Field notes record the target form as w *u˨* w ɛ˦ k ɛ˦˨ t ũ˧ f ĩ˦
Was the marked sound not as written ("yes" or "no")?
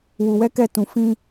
yes